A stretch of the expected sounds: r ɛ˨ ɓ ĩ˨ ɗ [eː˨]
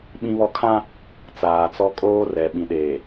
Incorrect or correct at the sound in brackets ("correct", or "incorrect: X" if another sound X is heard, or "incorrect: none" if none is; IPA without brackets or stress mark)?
correct